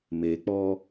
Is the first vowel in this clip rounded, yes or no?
no